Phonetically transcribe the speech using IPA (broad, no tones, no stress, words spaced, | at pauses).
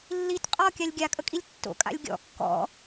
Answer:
lːit qʼɔkʲalʲ ɡʲakʼəkʼilʲ tːo̰kʼa̰lʲ ɡʲɔ̰ kːɔ̰